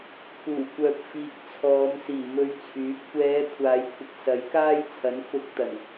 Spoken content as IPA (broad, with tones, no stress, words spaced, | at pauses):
kʰuː˨˩kʷœː˨p̚ fiː˨k̚t͡sʰɔː˨˧m siː˨˩mɵ˧ɥt͡sʰyː˨˥p̚ kʷɛː˨˧ kʷʰaː˨˧jkʷʰɪ˨k̚ sɐ˨˥jkaː˥jt͡sʰɐ˨˥n fʊ˧k̚t̪ɐ˨˩n